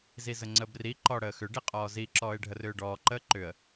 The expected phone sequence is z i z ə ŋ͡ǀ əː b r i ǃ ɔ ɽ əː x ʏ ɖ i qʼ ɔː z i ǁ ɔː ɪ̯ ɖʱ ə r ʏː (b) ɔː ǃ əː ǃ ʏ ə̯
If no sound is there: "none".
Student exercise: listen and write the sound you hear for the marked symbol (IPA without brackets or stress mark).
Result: ɖ